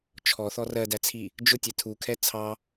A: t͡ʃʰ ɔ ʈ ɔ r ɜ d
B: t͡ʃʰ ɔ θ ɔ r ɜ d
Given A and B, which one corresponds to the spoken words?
B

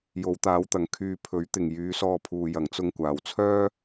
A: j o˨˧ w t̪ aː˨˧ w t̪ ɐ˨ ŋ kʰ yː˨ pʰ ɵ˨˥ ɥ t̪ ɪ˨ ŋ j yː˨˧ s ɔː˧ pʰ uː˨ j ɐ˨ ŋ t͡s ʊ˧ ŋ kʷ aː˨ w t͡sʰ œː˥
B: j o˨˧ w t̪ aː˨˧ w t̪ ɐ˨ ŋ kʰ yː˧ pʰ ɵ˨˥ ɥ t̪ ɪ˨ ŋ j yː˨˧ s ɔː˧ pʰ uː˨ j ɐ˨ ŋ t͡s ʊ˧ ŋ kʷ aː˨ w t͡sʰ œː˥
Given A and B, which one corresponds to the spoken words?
B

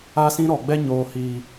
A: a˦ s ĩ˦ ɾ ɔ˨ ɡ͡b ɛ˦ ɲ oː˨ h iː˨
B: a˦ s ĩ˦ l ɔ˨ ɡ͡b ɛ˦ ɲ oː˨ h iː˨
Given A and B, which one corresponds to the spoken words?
A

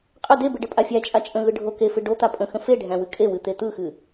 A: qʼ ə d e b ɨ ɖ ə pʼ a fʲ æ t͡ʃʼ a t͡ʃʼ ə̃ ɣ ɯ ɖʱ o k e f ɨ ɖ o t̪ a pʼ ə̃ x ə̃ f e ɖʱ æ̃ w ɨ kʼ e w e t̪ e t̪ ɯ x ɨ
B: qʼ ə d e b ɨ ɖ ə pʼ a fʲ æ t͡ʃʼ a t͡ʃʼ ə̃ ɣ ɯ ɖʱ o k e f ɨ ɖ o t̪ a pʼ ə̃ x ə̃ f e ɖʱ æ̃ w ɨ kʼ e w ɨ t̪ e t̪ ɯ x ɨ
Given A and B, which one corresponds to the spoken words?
B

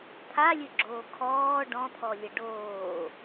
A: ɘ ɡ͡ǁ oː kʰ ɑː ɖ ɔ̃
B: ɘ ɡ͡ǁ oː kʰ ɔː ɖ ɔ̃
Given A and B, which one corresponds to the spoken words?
B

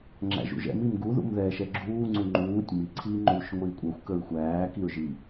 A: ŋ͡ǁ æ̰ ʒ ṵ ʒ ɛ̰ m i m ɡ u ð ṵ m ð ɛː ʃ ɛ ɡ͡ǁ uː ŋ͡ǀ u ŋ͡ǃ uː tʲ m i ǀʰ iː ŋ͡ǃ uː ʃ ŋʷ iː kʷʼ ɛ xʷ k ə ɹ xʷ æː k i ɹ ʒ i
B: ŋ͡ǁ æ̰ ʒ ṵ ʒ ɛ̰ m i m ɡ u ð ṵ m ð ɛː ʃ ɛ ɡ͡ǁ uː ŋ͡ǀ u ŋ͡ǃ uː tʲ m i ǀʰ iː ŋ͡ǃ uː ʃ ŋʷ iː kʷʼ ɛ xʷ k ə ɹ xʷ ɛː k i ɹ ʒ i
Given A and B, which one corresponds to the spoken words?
A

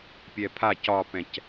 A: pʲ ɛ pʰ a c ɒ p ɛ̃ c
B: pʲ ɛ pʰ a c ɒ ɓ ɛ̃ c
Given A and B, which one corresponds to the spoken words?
A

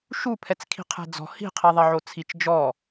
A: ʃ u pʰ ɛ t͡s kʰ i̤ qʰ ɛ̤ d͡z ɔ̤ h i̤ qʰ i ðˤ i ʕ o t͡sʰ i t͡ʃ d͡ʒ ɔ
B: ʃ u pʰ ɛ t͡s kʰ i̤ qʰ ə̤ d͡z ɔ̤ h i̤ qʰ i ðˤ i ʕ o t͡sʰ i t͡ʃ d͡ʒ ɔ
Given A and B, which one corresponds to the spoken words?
A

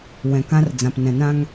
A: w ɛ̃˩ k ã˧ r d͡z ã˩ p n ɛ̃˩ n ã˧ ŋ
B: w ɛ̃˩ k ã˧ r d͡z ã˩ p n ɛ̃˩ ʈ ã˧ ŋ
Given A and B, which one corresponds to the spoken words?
A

